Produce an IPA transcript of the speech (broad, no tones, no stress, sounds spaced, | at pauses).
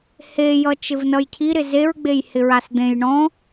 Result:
h e j ʌ t͡ʃ ɪ v n ʌ j cʰ i ɾ ɪ z e ɹ ɡ͡b e j h ɪ ɹ a s d̪ ẽ j ɳ ɔ̃